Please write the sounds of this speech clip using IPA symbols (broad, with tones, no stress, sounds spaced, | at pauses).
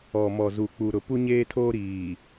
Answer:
ɔ˨ m ɔ˨ z u˨ k͡p u˨ ɾ ʊ˨ p u˦ ɲ eː˦ tʰ oː˦ ɾ iː˨